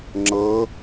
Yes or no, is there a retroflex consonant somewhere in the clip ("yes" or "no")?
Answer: no